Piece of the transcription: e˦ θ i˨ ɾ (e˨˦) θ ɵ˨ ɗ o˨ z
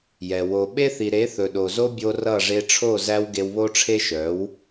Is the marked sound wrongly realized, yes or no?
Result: no